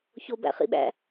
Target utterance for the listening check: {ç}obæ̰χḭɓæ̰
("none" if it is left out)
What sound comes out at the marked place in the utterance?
ç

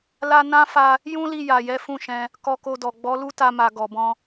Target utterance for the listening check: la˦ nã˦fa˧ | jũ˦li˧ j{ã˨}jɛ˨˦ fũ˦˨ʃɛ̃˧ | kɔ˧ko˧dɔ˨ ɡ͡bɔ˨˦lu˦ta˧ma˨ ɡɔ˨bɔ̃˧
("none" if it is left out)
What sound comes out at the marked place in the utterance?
a˨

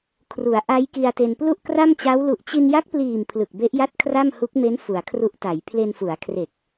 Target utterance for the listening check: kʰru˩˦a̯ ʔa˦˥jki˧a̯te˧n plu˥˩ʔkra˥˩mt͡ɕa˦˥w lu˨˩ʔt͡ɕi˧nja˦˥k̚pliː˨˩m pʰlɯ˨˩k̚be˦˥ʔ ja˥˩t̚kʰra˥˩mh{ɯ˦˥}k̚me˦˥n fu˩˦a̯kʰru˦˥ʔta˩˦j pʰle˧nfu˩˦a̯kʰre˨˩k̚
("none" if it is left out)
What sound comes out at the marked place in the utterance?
u˦˥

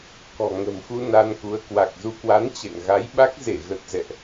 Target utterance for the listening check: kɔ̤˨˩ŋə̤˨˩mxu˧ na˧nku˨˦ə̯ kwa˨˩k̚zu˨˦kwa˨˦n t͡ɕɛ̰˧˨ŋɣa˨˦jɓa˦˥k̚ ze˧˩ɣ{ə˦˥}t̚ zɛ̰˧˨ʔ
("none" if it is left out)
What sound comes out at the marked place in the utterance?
ə˨˩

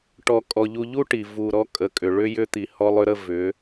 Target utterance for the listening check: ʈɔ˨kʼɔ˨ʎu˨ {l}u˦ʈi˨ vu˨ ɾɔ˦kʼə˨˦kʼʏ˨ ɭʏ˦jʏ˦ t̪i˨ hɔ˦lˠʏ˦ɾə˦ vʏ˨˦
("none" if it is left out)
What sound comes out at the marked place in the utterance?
ʎ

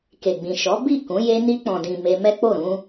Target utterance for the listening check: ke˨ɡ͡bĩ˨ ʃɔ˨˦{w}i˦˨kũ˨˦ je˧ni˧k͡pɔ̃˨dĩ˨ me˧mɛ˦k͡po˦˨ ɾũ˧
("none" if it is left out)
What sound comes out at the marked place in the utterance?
b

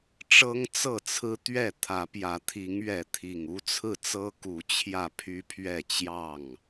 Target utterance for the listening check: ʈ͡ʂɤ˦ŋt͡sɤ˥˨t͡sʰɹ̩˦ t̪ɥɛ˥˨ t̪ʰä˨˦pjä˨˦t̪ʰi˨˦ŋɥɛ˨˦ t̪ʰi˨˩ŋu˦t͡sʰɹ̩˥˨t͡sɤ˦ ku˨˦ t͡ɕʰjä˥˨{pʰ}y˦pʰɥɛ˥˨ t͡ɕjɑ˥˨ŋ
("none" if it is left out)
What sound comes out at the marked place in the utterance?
pʰ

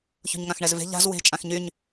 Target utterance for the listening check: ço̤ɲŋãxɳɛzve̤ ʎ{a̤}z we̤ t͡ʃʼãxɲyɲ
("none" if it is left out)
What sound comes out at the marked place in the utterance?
a̤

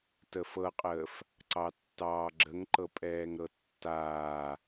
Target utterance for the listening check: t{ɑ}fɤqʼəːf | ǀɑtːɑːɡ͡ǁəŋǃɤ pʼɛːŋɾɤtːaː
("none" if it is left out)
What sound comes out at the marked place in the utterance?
ə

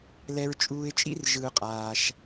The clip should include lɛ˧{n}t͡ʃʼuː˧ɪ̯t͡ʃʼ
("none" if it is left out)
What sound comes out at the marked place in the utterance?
ɹ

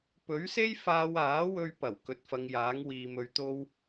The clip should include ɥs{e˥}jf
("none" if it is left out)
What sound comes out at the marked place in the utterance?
e˥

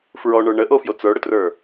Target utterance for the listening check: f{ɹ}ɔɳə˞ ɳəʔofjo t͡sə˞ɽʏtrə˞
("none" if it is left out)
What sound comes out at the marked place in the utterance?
ɹ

